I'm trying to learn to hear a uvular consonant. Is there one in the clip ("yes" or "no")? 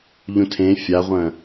yes